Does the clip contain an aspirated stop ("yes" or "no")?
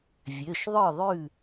no